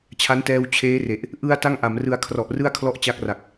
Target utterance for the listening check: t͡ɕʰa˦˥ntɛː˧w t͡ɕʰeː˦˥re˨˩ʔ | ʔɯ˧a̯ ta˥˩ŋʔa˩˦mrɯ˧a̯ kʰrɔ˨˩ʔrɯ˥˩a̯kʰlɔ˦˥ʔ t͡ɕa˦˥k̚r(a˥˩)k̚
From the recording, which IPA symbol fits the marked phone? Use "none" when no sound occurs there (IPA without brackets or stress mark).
a˨˩